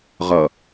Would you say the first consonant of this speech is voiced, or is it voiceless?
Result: voiced